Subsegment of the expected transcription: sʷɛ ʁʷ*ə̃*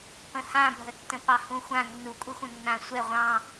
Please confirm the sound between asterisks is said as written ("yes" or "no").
no